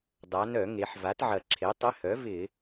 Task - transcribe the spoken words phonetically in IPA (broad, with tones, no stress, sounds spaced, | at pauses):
dˤ a˩˧ n œ˧˩˧ ŋ e˩˧ ħ v a˩˥ t ʕ ɐ˨˩ ǁʰ e˩˥ tˤ ɪ˧˥˧ h œ˩˥ v ɪ˧˩˧